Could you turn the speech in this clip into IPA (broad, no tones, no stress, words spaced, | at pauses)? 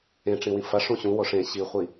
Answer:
ẽʈ͡ʂĩwĩ fɐʂ ũɕũ woʂẽ ɕiχʷi